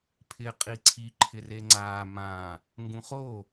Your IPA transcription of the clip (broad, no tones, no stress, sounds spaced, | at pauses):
pʰ ɪː qʼ i ǀʰ i ǃʰ ɪ r e ŋ͡ǀ aː m ãː | ŋ ɡ ũ χ o